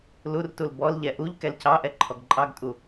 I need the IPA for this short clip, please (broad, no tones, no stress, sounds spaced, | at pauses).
l u r t u l b ɔ l ʎ ɛ ʔ u ʎ k ɛ l c ɑ ʔ ɛ ǃʰ ɔ ɡ ǃʼ ɑ ɡ tʼ u